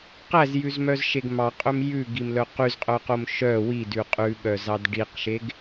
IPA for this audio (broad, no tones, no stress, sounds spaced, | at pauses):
q æ z j ʉ z m œ z ʃ e ɡ m ɑ qʼ ɵ m j ʉ ɡ i m l œ q y z qʼ œ q o m ʃ œ w i d ʉ qʼ ʉ ɓ œ z ɑ d ɖ i q ʃ e ɡ